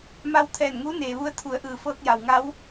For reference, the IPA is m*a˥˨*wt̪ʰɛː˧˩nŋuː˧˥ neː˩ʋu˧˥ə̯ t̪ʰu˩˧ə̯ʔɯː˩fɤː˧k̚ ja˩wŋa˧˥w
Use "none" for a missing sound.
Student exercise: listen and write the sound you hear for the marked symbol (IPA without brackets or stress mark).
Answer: a˧